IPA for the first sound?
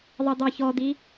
ðˤ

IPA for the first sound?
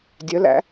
dʲ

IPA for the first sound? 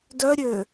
d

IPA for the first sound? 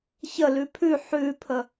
ç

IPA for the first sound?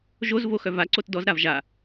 ʒ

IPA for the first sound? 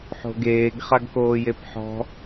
ħ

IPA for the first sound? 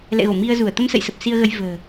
l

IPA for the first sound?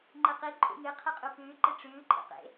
ŋ͡ǃ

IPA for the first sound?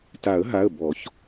t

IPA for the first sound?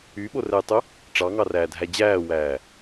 y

